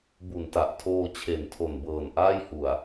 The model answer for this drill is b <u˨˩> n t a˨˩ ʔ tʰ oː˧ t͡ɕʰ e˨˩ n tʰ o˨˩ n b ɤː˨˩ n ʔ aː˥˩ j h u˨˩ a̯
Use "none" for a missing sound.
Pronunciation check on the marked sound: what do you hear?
u˨˩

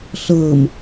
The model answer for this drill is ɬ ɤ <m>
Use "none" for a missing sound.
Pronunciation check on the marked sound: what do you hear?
m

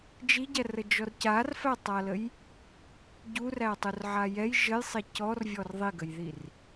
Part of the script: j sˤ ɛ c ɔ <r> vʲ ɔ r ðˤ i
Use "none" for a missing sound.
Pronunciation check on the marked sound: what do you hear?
r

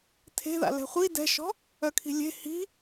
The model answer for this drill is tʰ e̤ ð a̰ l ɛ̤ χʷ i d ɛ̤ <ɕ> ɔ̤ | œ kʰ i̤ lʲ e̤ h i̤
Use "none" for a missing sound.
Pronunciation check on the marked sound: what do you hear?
ʃ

